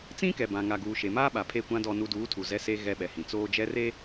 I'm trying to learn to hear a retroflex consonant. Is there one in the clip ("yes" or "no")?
no